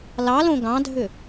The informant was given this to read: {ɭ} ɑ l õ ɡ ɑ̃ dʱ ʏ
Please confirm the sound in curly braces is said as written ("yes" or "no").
no